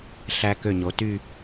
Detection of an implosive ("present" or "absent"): absent